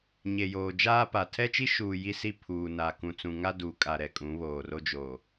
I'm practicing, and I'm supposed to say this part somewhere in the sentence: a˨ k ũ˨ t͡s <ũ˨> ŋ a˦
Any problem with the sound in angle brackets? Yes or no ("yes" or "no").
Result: no